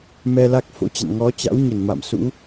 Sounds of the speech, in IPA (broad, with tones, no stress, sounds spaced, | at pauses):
m ɛ˧ l a˦˥ k̚ f o̰˧˥ t͡ɕ a̰˧˨ n ŋ ɔ˨˦ t͡ɕ a̰˧˥ w ɲ ə˧˩ n m a̰˧˨ m s ṵ˧˥